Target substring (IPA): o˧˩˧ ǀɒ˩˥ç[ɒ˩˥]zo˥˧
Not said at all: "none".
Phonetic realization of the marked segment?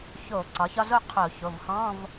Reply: ɒ˥˧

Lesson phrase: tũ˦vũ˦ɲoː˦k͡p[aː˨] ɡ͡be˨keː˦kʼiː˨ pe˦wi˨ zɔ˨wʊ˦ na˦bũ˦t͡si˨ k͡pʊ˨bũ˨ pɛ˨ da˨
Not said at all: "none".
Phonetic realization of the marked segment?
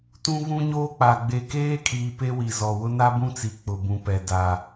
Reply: a˨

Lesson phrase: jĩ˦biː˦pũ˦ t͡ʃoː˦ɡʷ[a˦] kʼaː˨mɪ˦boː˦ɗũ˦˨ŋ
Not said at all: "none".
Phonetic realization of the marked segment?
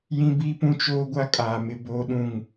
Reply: a˦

